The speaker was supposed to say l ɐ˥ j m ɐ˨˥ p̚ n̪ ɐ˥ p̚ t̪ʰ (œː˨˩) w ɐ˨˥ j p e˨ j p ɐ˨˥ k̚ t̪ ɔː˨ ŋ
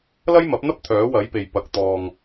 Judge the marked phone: incorrect: œː˨˥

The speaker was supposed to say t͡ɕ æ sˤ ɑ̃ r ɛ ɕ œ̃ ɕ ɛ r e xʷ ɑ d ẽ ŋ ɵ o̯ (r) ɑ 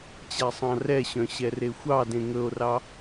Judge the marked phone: correct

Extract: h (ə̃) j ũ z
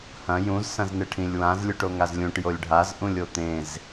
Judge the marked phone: incorrect: ɐ̃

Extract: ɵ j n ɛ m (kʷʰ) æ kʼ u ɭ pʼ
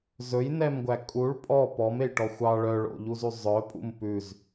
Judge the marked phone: incorrect: ɡʷ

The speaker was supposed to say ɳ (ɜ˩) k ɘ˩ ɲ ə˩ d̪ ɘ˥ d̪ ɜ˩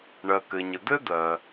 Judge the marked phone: correct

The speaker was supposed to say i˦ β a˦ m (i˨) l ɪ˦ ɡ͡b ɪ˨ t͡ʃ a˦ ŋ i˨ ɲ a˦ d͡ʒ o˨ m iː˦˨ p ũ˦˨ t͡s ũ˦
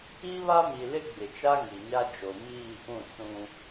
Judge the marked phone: correct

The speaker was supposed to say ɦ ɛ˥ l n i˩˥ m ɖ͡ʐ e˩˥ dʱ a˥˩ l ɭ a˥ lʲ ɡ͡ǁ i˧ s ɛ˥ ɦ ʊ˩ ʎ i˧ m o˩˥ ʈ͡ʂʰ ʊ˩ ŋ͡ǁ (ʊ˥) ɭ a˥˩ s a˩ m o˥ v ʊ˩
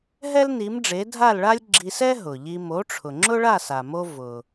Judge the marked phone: correct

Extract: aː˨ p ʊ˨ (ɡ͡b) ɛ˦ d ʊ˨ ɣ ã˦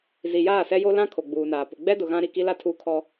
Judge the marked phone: correct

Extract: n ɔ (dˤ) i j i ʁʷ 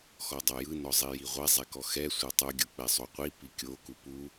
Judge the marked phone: incorrect: zˤ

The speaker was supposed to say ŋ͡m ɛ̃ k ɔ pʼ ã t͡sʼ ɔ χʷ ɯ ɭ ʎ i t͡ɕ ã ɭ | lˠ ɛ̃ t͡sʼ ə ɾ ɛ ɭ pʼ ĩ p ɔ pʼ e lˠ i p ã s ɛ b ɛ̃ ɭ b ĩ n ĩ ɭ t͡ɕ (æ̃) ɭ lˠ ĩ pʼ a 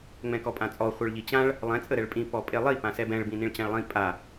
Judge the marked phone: incorrect: ã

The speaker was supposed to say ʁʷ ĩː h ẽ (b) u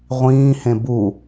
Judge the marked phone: correct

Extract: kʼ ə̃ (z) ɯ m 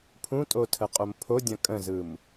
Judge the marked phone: correct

